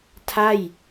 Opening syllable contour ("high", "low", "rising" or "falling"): falling